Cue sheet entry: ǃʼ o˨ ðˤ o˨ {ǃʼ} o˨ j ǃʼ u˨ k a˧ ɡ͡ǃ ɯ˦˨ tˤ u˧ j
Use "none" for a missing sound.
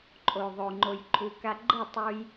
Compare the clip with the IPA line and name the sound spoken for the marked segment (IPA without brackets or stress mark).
ŋ͡ǃ